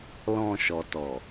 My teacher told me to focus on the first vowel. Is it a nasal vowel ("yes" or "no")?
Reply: yes